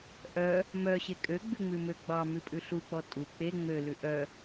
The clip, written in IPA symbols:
ʔœ | mœɕe kʼøɡ͡bʉŋ͡mʉmø ɡ͡bɑmʉpʼʉ ɬuk͡pɔ tʼu k͡pe ŋ͡mølʉ ʔœ

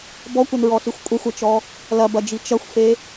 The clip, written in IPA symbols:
bɔkʷɐnɹɔɬixʷ kʷʼɐxʷɐt͡ʃɔ | lɐbɐd͡ʒi t͡ʃɐxʷfe

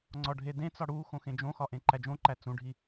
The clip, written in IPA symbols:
ŋ͡ǀɒɖʱedẽt͡sɒ ɽu xõxẽd͡ʒõxɒ ʔẽǃæd͡ʒõǃæ t͡sũɖʱi

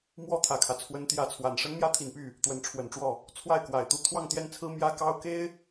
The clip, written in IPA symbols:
mwɔ˥t̪ʰä˨˩kʰä˦ t͡sʰwə˧˥nt̪jä˧˥t͡sʰwa˨˩n ʂə˥nmjä˥t̪ʰi˨˩npy˥˩ | t̪wə˧˥nʈ͡ʂʰwə˨˩nʈ͡ʂwɔ˥˩ | t͡sʰwa˥˩ɪ̯kwa˨˩ɪ̯ t̪u˥ t̪ʰwɑ˥˧ŋt̪jɛ˥˩nt͡sʰɹ̩˥ mjä˥kɑ˥ʊ̯ ke˥ɪ̯

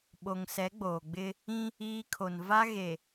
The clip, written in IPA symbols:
ɓo˨ŋ sɛ˨˦ɡ͡boː˨ɡ͡bɪ˦ | ĩ˦ | iː˦ kʰo˨n va˦ ɣe˨

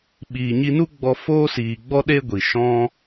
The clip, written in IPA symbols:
ɓiː˨ɲi˧nu˦ ɡ͡bɔ˧ foː˦siː˨ ɡ͡bɔ˦ɗe˦ ɡʷi˨ ʃɔ̃˦

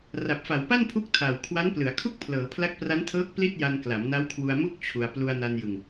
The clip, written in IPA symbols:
ra˨˩p̚fa˩˦wpa˥˩npʰu˦˥k̚ tʰa˨˩w kʰwa˦˥nplɯ˩˦a̯kʰu˥˩k̚ pʰlɤː˩˦pʰla˦˥k̚pra˦˥ntʰɤː˦˥k̚ pli˥˩t̚ja˧n kla˩˦mna˦˥wkʰwu˧a̯ mu˥˩k̚ t͡ɕʰu˧a̯ plu˧a̯na˧njɯ˧ŋ

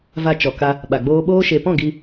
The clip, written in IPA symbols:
va˧ t͡ʃɔ˨ka˧ | ɓa˨ɡ͡boː˧ɓoː˦ ʃe˨pɔ̃˦˨ ɡi˧

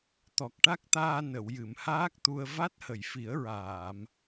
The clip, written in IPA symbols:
t̪ɔ˨˩k̚ʈa˦˥k̚t̪aː˧ nə˨˩˨wjɨ˨˩˨mhaː˦˥k̚t̪u˧ə̯ va˦˥t̚hə˨˩˨jfi˨˩˦ə̯ɹaː˨˩˨m

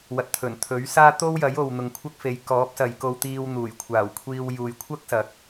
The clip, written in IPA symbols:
wɐ˨˥t̚t̪ʰɵ˨˩n t̪ʰɵ˨˥ɥsaː˥ t̪o˥wjɐ˨˥j o˨wn̪ʊ˨ŋ kʷʰɐ˥k̚fe˨˧j kɔː˨˥p̚sɐ˨jko˧w t̪iː˧w n̪uː˨˩jkʷʰaː˨˩wkʷʰiː˧w juː˨jkʷʰɐ˥k̚ sɐ˨k̚

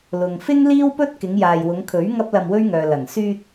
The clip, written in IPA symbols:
lʊ˨ŋfɪ˥ŋliː˥wpɵ˥t̚ kɪ˨˧ŋjaː˨jwʊ˨˧ŋkʰɵ˨˥ɥ ŋɐ˥p̚lɐ˧mwɵ˥ɥŋœː˨ lɐ˨˩ŋ syː˧t̚

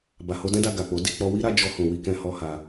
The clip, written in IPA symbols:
ba˨ho˧dɛ̃˦da˧ ɡa˨k͡po˨˦ di˦˨k͡pɔ˧ wi˦ɾa˦ d͡ʒɔ˧hũ˨ wi˧kɛ̃˧hɔ˧ ha˧

